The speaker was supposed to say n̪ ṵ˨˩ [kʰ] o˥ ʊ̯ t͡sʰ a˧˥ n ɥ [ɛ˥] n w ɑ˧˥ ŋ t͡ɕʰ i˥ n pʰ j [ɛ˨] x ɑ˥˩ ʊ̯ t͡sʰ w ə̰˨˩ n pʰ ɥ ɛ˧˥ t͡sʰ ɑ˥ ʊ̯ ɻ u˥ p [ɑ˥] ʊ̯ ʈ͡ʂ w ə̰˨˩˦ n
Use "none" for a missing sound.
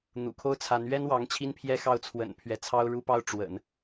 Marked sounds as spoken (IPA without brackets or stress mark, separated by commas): kʰ, ɛ˥, ɛ˥, ɑ˥